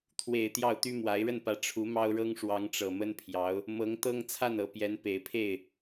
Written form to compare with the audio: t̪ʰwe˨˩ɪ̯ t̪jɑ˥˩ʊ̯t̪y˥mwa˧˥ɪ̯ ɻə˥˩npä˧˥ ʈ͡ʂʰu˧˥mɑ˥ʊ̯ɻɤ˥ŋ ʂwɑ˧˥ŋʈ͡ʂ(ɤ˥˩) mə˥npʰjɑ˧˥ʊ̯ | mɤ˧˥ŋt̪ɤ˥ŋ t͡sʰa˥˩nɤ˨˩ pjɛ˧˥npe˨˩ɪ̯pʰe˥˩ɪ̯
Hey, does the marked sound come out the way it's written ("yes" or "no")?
no